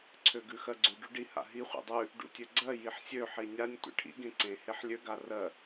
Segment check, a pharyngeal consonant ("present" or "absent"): present